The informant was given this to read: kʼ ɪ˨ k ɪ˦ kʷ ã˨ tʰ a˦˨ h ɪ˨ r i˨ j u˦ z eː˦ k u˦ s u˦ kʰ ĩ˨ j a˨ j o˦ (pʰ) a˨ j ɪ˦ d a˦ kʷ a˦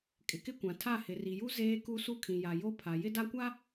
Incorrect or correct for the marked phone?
correct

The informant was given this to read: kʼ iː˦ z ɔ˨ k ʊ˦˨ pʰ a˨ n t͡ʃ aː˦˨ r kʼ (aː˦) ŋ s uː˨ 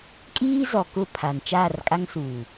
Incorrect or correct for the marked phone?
incorrect: a˦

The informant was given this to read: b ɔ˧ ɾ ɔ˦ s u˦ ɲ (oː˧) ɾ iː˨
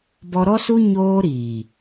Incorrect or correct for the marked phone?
correct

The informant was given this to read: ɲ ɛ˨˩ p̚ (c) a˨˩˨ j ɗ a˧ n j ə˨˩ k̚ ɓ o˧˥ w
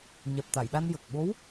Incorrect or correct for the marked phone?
incorrect: t̪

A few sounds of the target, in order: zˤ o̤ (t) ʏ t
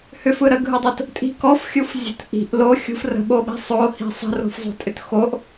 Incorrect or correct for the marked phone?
incorrect: tʼ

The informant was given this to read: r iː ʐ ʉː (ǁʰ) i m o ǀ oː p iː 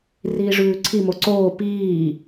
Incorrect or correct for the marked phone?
incorrect: ǀʰ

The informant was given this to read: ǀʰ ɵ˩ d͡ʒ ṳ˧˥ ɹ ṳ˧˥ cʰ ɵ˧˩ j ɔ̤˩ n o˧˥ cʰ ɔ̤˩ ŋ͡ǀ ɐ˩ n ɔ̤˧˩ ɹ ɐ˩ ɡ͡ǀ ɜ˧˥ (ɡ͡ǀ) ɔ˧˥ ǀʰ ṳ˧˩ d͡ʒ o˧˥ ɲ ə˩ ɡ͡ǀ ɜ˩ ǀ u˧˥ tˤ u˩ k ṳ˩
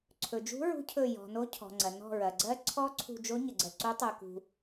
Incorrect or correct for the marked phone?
incorrect: ǀʰ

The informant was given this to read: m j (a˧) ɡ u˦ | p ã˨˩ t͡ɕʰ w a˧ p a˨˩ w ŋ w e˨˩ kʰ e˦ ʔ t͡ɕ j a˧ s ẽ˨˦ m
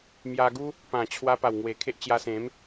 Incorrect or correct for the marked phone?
correct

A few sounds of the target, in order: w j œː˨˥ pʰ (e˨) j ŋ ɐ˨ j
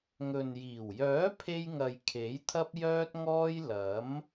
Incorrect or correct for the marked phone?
incorrect: e˧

